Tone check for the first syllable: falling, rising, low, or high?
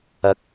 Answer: rising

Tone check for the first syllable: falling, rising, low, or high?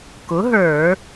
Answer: rising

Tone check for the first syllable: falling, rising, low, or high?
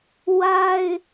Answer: high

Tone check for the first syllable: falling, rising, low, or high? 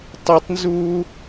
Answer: high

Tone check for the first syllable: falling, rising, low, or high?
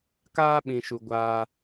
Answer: high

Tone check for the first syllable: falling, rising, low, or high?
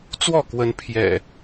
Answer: falling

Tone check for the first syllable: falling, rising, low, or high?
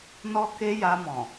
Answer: high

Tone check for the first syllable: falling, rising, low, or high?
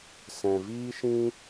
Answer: low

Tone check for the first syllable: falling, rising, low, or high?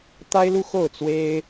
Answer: high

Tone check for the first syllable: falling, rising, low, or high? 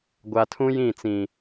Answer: low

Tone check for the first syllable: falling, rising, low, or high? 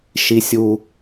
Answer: high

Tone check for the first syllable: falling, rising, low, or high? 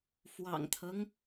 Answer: low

